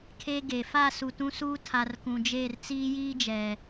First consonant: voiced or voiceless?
voiceless